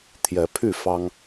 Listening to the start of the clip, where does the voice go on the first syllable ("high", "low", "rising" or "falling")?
rising